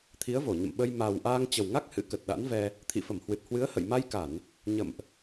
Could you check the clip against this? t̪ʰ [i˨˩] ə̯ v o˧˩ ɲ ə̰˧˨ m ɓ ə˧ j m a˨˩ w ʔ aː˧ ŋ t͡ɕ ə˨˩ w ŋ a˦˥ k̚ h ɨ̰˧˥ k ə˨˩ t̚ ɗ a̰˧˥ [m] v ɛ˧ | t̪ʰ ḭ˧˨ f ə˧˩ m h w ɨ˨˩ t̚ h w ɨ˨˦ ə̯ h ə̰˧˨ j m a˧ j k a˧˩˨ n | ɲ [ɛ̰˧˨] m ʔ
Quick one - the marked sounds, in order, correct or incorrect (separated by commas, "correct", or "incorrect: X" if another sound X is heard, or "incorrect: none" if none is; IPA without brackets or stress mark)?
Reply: incorrect: i˨˦, incorrect: n, incorrect: ə̰˧˨